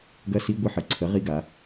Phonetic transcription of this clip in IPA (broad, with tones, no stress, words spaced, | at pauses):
ɡɐ˧˥˧si˧˥˧ɡʷə˧˥˧ ħə˩˧ǀʰə˩˥ ʁi˧˥˧ɡa˩˧